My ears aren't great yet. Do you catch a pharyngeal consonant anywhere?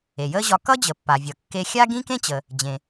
no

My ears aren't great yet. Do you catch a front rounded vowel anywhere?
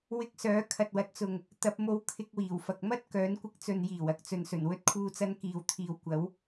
yes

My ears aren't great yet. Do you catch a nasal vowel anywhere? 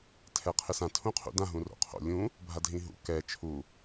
yes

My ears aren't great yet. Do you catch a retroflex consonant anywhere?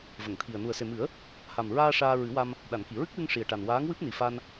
yes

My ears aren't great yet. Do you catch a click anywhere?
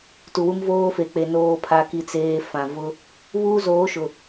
no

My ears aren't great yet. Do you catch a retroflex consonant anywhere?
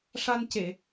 yes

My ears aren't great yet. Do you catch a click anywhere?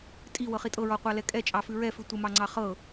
yes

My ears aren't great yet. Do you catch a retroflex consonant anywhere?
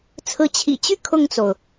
no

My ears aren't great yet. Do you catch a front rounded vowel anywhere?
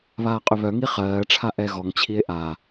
yes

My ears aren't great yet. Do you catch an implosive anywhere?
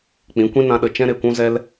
yes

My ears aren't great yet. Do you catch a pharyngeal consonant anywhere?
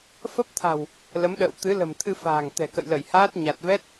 no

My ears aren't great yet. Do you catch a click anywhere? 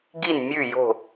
no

